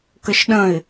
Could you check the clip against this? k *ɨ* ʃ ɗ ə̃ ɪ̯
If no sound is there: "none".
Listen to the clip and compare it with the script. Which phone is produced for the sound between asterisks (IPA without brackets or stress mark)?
ə